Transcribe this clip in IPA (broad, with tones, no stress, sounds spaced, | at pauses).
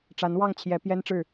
ʈ͡ʂ a˧˥ n w ɑ˥˩ ŋ t͡ɕʰ j ɛ˧˥ p j ɛ˥ n ʈ͡ʂ ɻ̩˥˩